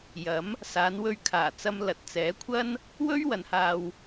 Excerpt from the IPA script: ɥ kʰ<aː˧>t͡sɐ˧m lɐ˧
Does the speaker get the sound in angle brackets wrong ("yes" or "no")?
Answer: yes